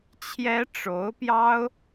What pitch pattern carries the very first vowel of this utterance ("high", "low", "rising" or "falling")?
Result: high